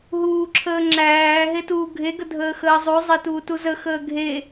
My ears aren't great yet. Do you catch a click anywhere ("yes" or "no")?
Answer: yes